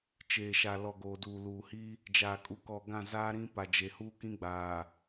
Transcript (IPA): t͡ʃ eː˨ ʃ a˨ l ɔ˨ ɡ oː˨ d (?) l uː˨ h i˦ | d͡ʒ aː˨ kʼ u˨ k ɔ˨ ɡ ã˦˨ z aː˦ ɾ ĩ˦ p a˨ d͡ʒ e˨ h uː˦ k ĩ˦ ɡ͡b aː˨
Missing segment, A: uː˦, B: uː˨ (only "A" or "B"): B